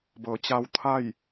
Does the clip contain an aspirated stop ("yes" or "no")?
yes